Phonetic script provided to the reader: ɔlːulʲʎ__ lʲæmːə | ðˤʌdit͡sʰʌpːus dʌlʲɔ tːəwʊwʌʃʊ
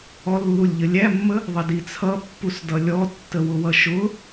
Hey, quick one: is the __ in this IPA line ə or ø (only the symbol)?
ə